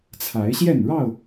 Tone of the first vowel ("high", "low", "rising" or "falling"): rising